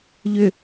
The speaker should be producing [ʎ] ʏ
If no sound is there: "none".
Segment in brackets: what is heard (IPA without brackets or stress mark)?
ʎ